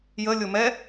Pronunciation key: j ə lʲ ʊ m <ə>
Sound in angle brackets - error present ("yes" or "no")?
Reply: yes